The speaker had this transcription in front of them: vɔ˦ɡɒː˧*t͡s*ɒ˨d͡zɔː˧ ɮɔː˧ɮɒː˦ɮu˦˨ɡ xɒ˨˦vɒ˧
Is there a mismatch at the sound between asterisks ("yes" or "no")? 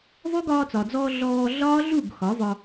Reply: no